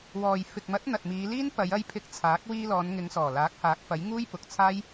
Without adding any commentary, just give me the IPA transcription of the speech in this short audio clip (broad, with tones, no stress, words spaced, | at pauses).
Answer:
wɔː˨j fɪ˨k̚mɐ˨˥t̚ n̪ɐ˨t̚miː˨˧ liː˥n pɐ˨˧jɐ˧j pʰɪ˧k̚t͡sʰaː˨˥k̚ wiː˧lɔː˨˧nŋɪ˨˧ŋsɔː˨˩ laː˨˥k̚haː˨˥k̚fɐ˨˥j ŋuː˥jpʊ˨k̚t͡sʰaː˥j